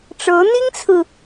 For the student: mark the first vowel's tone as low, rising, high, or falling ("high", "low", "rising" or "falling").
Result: rising